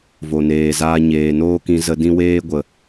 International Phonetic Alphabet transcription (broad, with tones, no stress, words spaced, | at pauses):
vo˨neː˨zaː˧ ɲeː˨noː˦kĩ˧ zə˧dĩ˦weː˦ ɡʷə˨